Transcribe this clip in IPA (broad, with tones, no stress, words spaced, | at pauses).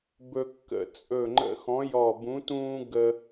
bɵ˦kːə̰˧˩ t͡sʼɵ˧˩ŋ͡ǃə̰˧˩ xɔ̃˨˥jɔ˧˩bũ˨˥tũː˦ ɡə˦